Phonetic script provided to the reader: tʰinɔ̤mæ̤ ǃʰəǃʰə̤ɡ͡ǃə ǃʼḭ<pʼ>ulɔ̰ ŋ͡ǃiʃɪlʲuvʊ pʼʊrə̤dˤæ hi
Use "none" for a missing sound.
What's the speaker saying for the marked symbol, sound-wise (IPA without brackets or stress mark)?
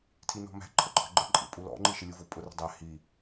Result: pʼ